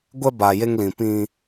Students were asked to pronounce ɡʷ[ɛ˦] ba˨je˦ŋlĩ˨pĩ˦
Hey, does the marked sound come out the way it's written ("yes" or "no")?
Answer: yes